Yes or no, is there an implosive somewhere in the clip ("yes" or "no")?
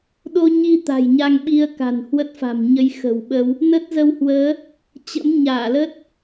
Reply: yes